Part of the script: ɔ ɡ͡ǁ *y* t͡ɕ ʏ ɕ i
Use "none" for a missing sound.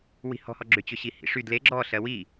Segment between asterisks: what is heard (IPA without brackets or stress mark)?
ʏ